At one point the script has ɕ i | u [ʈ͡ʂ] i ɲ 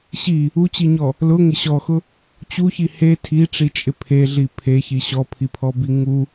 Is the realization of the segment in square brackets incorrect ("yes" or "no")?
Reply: yes